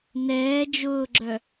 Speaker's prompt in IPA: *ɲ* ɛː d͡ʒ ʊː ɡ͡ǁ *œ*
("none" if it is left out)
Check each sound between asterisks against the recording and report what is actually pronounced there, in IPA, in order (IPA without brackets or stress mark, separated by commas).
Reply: n, œ